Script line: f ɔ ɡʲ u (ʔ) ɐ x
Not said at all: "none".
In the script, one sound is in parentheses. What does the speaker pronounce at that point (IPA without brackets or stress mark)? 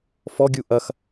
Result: ʔ